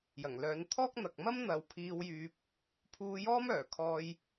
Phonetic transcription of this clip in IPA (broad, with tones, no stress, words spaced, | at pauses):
jɐ˨˩ŋlœː˨˧nt̪ʰɔː˥k̚ n̪ɐ˨k̚mɐ˥m n̪ɐ˨˧wpʰiː˧wjyː˧p̚ | pʰuː˧jɔː˥mœː˨˩ kʰɔː˧j